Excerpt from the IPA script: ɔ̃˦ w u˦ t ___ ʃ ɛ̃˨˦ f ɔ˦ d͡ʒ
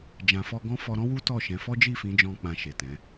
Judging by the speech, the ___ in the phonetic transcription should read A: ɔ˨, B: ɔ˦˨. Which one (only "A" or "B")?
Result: B